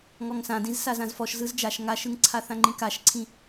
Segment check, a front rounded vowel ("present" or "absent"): absent